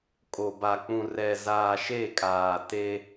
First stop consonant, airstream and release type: ejective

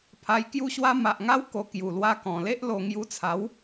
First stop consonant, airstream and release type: aspirated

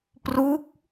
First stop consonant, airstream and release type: plain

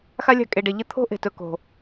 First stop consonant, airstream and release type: ejective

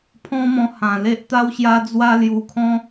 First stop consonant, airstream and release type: aspirated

